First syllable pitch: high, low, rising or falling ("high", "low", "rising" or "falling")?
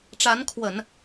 rising